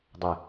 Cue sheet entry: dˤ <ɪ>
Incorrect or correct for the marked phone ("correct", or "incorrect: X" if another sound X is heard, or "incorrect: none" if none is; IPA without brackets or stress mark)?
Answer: correct